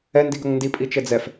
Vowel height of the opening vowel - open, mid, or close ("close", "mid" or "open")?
mid